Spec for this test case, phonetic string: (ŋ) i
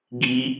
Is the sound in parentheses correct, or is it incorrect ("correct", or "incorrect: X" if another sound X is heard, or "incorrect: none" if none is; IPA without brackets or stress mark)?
incorrect: ɡ